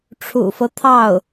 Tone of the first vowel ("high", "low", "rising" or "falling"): low